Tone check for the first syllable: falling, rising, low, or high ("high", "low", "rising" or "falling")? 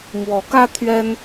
rising